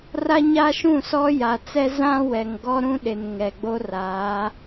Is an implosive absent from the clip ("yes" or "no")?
no